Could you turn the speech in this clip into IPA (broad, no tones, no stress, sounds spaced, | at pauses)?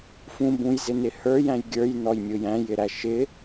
f ũ b ũ j z ɪ n ɪ h ə˞ j æ̃ j ɡʲ ə˞ j n ɔ j mʲ ʊ j æ̃ j ɪ ɾ æ ʃ ɪ